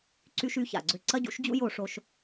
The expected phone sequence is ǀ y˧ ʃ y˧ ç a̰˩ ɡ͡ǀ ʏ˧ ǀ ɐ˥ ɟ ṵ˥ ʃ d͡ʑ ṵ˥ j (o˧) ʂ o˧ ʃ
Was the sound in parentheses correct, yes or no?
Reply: yes